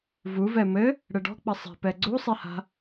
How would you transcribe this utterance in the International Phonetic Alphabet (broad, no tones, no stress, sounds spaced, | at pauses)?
v u v ɛ m ɘ | ɽ ɘ ɖ ɔ̤ k͡p ɐ sˤ i̤ p ɛ ɡ͡ǀ u sˤ i h a̤